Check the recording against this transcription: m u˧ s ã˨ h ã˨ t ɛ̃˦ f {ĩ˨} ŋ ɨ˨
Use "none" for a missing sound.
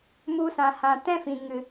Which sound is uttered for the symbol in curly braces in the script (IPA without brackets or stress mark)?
ĩ˨